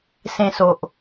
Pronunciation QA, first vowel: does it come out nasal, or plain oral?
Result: nasal